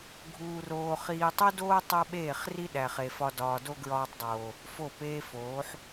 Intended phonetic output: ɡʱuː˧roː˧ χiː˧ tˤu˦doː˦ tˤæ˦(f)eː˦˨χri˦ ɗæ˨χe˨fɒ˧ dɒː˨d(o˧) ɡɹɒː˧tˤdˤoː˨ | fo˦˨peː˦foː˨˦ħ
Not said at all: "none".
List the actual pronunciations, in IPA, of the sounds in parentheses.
ɓ, o˧

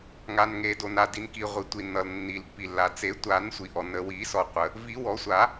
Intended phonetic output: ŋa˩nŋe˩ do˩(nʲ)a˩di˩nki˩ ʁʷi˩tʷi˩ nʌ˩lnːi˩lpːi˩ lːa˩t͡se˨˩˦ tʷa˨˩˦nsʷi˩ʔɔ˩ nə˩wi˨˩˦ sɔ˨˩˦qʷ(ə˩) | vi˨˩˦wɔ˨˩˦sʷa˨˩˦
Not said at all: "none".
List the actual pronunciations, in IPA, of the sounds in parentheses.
n, ə˩

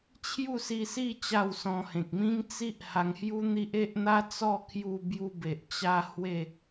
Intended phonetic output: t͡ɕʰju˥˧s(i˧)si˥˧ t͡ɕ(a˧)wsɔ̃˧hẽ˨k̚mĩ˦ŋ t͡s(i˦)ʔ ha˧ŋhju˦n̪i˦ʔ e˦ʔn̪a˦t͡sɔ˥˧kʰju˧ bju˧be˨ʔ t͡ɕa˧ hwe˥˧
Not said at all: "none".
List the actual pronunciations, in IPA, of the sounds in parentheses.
i˧, a˥˧, i˦

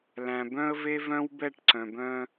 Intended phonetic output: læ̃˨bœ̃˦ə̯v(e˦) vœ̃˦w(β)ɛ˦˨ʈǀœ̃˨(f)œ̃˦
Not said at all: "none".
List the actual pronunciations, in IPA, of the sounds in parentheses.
e˦, b, b

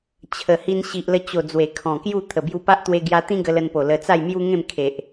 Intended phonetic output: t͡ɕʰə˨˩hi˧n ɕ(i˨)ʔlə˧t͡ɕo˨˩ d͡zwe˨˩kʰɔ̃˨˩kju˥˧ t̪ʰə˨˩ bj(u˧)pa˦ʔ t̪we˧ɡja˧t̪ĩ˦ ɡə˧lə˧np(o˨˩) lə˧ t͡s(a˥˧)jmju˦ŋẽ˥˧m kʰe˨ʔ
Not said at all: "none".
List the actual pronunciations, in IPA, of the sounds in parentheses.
i˨, u˧, o˨˩, a˥˧

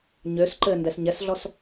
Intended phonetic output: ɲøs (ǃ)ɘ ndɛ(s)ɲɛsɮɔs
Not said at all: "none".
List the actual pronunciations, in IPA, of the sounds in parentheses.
ǃ, s

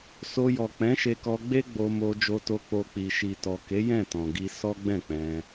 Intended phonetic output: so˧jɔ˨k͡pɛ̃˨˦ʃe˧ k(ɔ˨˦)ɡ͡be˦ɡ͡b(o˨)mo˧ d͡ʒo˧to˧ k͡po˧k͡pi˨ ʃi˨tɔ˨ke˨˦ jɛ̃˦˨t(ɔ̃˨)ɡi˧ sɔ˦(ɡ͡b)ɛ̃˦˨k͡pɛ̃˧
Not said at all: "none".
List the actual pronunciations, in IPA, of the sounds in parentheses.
ɔ˧, o˧, ɔ̃˨, ɡ͡b

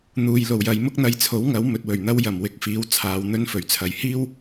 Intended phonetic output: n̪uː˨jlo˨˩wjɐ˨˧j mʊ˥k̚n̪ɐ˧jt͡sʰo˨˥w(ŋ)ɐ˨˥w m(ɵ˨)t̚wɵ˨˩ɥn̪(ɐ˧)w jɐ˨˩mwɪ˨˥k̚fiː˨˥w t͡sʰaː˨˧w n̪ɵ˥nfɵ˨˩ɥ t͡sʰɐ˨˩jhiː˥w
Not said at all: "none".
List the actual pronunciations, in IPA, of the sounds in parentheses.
ŋ, ɵ˨, ɐ˥

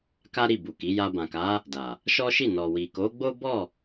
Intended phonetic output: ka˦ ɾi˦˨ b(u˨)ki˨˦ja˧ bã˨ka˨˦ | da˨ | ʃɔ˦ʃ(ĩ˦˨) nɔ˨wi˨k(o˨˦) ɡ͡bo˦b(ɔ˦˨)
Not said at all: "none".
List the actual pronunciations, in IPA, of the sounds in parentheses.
u˨, i˦˨, o˨˦, ɔ˦˨

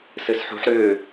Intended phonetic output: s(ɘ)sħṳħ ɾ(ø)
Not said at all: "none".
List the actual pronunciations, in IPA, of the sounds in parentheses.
ɘ, ø

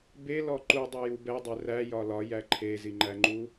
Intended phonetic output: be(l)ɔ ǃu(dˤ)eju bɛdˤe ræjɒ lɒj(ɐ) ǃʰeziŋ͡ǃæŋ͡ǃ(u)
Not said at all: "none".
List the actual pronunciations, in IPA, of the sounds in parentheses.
l, dˤ, æ, u

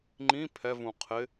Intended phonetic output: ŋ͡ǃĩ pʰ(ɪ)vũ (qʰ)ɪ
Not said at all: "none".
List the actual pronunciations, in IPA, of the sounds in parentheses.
ɛ, qʰ

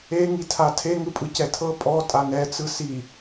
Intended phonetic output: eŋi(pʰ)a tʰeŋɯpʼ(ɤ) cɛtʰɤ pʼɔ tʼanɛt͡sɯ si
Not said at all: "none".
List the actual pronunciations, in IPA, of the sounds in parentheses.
tʰ, ɯ

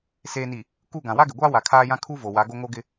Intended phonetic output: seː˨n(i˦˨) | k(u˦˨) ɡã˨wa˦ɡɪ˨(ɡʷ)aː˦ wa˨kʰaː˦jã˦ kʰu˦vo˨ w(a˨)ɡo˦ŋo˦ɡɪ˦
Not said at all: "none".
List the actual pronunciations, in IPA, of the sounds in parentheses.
i˨, u˦˨, ɡʷ, a˨˦

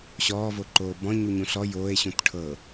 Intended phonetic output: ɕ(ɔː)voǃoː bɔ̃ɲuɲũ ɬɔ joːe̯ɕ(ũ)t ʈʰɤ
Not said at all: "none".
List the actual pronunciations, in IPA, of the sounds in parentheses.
ɔː, ũ

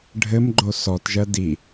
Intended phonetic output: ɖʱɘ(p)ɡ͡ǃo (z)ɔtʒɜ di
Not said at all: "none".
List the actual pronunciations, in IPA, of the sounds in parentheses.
m, s

